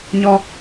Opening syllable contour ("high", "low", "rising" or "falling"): high